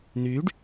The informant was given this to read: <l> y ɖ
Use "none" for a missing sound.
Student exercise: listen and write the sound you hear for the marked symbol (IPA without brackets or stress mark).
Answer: n̪